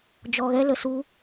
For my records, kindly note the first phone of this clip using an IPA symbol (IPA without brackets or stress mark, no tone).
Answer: d͡ʒ